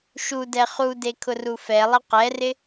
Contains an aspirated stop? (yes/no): yes